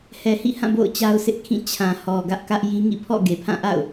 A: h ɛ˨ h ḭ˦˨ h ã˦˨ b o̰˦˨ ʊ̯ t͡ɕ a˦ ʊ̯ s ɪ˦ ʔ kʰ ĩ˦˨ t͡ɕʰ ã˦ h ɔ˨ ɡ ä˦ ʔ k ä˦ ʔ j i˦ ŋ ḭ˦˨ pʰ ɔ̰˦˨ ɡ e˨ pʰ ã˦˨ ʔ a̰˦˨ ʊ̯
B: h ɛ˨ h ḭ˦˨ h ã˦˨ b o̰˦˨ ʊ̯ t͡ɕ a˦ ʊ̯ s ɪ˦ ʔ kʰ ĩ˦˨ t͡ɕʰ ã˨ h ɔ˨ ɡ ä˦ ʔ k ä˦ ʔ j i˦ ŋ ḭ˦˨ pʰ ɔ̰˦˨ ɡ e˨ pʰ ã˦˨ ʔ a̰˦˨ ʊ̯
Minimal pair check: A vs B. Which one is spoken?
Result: B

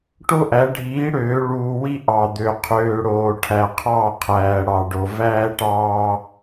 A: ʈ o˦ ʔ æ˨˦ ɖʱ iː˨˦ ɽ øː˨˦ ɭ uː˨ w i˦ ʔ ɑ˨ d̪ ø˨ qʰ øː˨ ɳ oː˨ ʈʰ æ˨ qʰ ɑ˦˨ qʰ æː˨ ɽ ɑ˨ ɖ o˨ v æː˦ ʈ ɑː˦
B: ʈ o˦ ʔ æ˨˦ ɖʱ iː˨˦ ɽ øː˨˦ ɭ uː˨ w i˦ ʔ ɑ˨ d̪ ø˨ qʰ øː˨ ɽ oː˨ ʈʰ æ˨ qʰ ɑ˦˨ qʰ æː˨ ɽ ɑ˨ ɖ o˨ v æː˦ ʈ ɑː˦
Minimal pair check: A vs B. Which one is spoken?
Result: B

